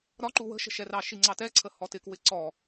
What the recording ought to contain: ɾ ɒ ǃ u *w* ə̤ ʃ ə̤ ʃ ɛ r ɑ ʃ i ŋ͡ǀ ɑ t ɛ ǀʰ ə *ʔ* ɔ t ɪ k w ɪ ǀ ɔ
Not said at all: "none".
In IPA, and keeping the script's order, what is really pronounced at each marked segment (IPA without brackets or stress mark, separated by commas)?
w, h